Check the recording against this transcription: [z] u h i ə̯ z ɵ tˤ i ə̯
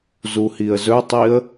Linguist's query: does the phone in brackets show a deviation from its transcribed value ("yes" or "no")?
no